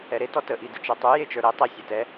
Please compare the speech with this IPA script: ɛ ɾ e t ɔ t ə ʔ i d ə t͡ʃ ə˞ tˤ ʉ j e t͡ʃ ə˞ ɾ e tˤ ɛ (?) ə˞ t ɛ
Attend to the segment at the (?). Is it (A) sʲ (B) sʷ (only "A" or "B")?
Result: A